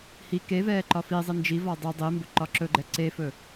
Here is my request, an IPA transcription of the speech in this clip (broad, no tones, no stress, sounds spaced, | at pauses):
h i k e v ɛː ǃ ɒ f i zˤ i n d͡ʒ i v ɒ dˤ i dˤ i m b ɵ ǃ ɒ ǁ ɵ ɡ͡ǃ ɛ ǀ e f ɵ